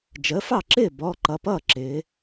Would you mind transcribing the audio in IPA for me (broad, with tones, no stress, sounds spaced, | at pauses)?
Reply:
d͡ʒ əː˩˥ f ɑ˥˩ ǁ ɪː˥˩ b ɔː˩˧˩ ǃ ʌ˩˧˩ p ʌː˥˩ ǁ ɪː˩˧